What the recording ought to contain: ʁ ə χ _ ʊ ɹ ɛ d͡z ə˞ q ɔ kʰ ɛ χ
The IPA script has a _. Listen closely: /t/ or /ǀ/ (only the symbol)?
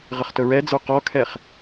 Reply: t